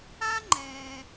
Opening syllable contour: high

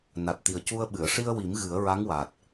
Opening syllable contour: low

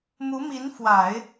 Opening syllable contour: rising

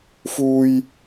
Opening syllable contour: high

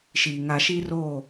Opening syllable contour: low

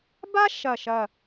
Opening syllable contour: high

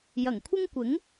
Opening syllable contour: low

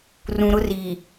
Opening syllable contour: low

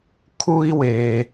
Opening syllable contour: high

